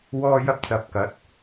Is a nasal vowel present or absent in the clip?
absent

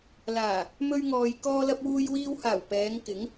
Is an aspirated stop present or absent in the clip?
absent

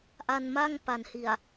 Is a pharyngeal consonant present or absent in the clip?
absent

